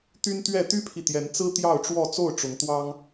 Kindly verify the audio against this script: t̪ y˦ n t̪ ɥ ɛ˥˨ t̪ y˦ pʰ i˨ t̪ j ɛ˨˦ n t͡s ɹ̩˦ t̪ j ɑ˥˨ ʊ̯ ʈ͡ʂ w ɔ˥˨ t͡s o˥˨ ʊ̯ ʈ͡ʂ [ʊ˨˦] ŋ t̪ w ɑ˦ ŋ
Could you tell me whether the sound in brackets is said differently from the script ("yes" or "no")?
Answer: no